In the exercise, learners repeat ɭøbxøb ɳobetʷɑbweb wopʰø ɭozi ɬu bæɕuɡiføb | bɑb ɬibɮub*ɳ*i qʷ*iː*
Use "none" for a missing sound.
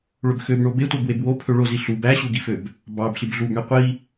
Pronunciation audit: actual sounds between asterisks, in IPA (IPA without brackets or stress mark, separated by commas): ɳ, i